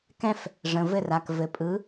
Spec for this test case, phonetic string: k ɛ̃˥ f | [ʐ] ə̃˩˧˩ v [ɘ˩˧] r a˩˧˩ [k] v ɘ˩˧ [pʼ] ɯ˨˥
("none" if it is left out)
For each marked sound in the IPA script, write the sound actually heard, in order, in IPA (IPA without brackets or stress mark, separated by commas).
ʐ, ɘ˥˨, k, pʼ